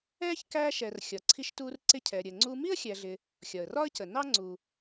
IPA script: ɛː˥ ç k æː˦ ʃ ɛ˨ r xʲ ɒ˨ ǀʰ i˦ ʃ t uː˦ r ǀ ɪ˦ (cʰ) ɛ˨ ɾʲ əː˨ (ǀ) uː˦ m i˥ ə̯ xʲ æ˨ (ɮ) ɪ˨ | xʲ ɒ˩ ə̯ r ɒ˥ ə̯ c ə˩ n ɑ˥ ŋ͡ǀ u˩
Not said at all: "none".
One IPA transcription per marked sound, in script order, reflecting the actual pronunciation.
cʰ, ŋ͡ǀ, ɮ

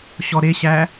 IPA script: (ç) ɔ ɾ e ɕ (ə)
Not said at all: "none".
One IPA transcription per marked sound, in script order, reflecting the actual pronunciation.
ɕ, æ

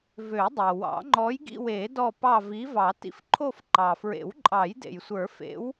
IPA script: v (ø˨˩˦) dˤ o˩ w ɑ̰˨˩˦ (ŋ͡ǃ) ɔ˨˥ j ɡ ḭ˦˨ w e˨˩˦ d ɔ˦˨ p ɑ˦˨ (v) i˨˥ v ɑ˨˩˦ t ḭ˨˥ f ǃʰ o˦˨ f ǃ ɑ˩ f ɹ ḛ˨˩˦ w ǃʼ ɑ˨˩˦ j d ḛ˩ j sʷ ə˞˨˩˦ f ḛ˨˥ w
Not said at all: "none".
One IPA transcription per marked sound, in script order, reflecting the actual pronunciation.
ø˨˩˦, ŋ͡ǃ, v

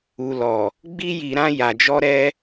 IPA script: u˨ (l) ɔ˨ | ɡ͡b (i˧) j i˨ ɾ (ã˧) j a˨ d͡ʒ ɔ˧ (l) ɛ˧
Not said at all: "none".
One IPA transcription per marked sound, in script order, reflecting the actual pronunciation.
l, i˧, ã˧, ɾ

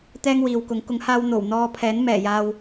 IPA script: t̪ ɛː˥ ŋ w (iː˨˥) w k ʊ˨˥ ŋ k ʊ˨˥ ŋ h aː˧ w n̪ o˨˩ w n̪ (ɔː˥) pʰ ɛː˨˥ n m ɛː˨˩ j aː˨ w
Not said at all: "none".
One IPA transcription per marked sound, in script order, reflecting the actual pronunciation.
iː˨, ɔː˧

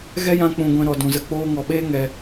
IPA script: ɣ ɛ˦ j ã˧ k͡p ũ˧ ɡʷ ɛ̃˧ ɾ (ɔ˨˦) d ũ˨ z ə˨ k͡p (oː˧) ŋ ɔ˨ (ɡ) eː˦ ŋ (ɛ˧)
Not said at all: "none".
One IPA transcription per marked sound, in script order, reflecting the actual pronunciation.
ɔ˨, oː˧, ɓ, ɛ˧

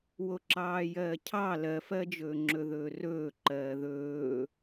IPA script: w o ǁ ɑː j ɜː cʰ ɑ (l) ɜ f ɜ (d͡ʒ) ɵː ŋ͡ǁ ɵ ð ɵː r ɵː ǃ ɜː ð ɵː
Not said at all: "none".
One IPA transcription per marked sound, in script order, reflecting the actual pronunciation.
l, d͡ʒ

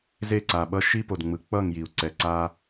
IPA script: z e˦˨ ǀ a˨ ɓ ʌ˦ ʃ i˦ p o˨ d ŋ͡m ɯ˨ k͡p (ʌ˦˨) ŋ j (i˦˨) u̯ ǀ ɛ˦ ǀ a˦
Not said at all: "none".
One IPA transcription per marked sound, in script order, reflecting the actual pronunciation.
ʌ˦˨, i˨

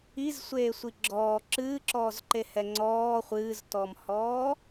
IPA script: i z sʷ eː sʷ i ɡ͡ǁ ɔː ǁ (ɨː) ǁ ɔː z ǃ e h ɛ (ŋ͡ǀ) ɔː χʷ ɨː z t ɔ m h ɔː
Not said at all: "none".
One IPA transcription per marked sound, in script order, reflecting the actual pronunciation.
ɨː, ŋ͡ǀ

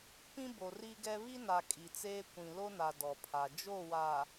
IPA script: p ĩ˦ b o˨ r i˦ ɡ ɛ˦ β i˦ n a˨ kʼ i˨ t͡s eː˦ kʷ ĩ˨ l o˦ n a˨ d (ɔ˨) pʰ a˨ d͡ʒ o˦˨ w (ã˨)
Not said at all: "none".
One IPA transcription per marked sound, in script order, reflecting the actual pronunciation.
ɔ˨, a˨

